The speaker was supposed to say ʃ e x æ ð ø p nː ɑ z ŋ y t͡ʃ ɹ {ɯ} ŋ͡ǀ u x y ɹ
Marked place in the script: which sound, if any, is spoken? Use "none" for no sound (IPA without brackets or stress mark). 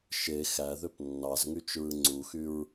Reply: ɯ